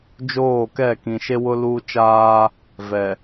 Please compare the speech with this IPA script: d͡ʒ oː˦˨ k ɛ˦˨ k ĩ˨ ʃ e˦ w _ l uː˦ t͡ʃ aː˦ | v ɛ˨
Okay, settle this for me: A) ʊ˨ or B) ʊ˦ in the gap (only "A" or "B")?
B